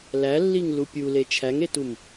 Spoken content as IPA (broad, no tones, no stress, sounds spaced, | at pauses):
l æ lː i ŋ l u pʲ u l e t͡ʃʰ æ ŋ e t u m